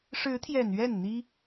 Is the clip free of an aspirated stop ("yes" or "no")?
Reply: no